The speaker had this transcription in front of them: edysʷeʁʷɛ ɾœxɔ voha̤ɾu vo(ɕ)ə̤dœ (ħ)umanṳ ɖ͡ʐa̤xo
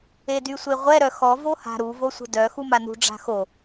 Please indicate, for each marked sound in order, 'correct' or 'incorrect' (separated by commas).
incorrect, incorrect